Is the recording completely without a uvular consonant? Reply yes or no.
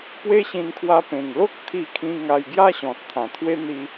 yes